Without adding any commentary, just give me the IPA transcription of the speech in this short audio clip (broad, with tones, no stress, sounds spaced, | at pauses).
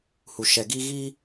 h u˨ ʃ ɛ˨ ɡ iː˧ ɣ i˧